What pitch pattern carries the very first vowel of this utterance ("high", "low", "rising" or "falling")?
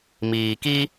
low